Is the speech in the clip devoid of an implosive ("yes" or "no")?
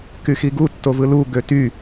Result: yes